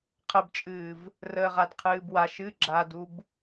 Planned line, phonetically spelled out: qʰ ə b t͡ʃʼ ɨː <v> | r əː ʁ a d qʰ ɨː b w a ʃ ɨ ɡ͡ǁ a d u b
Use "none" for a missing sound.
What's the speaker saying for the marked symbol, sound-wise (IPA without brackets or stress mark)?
v